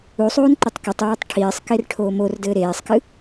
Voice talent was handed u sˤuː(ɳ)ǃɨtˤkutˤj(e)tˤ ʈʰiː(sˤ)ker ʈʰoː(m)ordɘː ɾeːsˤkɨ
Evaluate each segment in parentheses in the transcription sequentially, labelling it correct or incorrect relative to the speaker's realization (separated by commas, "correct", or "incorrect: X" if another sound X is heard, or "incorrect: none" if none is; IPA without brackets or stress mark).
incorrect: n, incorrect: eː, correct, correct